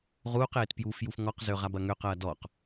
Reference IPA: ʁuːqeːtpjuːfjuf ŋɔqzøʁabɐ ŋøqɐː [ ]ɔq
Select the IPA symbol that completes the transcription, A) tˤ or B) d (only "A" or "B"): B